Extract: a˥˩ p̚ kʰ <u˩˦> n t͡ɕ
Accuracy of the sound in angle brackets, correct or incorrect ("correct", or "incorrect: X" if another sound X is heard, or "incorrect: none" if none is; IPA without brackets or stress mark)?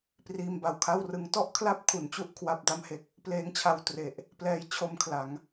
correct